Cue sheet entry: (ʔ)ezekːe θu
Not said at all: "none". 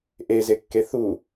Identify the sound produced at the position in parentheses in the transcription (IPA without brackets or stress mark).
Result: ʔ